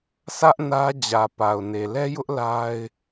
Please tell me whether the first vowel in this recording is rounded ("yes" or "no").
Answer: no